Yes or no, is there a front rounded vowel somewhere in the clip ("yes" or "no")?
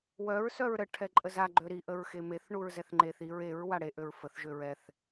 yes